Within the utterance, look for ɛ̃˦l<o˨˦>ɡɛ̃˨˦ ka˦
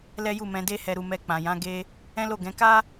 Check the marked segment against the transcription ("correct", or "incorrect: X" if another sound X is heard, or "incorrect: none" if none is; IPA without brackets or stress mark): incorrect: o˦˨